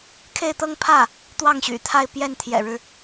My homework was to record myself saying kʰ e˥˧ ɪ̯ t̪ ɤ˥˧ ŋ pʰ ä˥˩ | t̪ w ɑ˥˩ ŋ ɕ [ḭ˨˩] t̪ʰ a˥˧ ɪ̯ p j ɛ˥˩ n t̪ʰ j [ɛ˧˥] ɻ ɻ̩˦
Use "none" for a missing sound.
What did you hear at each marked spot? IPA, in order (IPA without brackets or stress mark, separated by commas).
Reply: y̰˨˩, ɛ̰˨˩